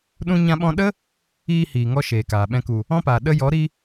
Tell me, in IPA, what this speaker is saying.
ɗ ũ˧ ɲ ã˧ ɓ ɔ̃˧ ɗ ə˦ | iː˧ h iː˨ ŋ ɔ˦ ʃ eː˨ k aː˨ ɓ ɛ̃˧ k u˨ | ɔ̃˦ p aː˨ ɗ ə˧ j ɔ˨˦ ɾ i˧

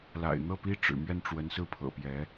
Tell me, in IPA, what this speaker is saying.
l a̰˨˩ ɪ̯ n̪ ɤ˥˩ p i˥ ʈ͡ʂ ɻ̩˨˩ m ɥ ɛ˥˩ n ʈ͡ʂ w ə˧˥ n s ɹ̩˥˩ pʰ ɤ̰˨˩ p j ɛ˧˥

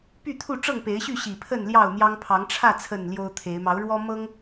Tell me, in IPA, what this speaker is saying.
p y˥˨ t̪ʰ u˥˨ ʈ͡ʂ ɤ˥˨ ŋ p e˨˦ ɪ̯ ɕ y˥˨ ɕ i˨˩ pʰ ə˥˨ n l j ɑ˥˨ ʊ̯ n̪ j ɑ˦ ŋ pʰ ɑ˨˦ ŋ ʈ͡ʂʰ ä˥˨ t͡sʰ ə˥˨ n l j o˦ ʊ̯ t̪ʰ e˨˦ ɪ̯ m ɑ˨˦ ʊ̯ ɻ w ɔ˦ m ɤ˦ ŋ

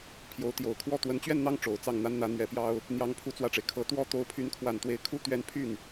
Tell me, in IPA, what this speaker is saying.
pʰ j o˧˥ ʊ̯ t̪ j o˨˩ ʊ̯ kʰ w ɔ˥˩ t̪ w ə˧˥ n t͡ɕ ɥ ɛ˥˧ n n̪ ɑ˥˩ ŋ ʈ͡ʂ o˨˩ ʊ̯ t͡s ɑ˥˩ ŋ n̪ a˥ n n̪ ä˧˥ n̪ ɥ ɛ˧˥ p j ɑ˥ ʊ̯ | n̪ j ɑ˥ ŋ pʰ u˥˧ t͡s w ä˥˩ ʈ͡ʂ e˩ ɪ̯ kʰ ɤ˧˥ t̪ w ɔ˥ t̪ o˧˥ ʊ̯ pʰ y˧˥ n kʰ w a˨˩ n t̪ w e˧˥ ɪ̯ kʰ u˥˧ t̪ ɥ ɛ˥˧ n pʰ y˥˩ n

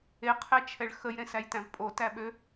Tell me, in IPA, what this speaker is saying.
e qʰ ɛ t͡ʃʰ ɛ ɭ x ə j ɾ ẽ s æ j t æ̃ v pʼ o t æ ɓ ø

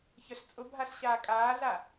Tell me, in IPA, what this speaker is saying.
ç œ ɬ t͡sʼ ʊ bʱ a ɬ ɕ aː kʼ aː ɮ a

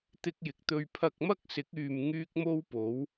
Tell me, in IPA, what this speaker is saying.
t̪ ɪ˧ k̚ j ɪ˨ k̚ t̪ ɵ˧ ɥ pʰ ɐ˧ k̚ m ɐ˥ k̚ s ɪ˨˥ k̚ yː˧ m ŋ yː˥ k̚ m o˥ w p o˨˥ w

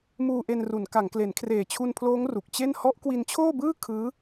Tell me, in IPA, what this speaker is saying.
m uː˧ ʔ e˧ n r u˩˦ n k a˩˦ ŋ k l e˩˦ n kʰ r eː˨˩ t͡ɕʰ u˧ n pʰ l oː˦˥ ŋ r u˨˩ k̚ t͡ɕ e˥˩ n h ɔ˦˥ ʔ k w i˧ n t͡ɕʰ oː˥˩ b ɯː˥˩ kʰ ɯː˦˥

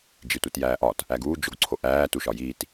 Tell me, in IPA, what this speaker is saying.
d͡ʒ i tʷ i t j æː ʔ ɒ t | æ ɡ uː d͡ʒ o ɡ ǀʰ o ʔ æː t u ʃ ɒ j iː t

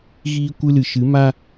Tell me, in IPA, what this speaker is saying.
ɣ iː˨ kʷ ɨ˧ l ɨ˨ ʃ ɨ˨˦ m a˧

